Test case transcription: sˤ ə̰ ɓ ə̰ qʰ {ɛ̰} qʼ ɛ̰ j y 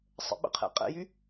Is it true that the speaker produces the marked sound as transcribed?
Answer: yes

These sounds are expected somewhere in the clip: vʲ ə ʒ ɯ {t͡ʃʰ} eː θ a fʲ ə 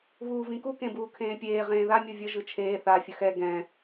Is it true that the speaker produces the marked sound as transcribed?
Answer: yes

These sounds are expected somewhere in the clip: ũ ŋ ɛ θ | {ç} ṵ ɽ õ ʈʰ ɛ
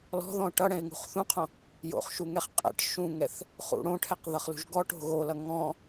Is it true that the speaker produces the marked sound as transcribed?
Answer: no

